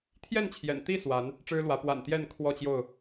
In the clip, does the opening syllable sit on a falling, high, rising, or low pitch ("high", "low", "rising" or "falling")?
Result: falling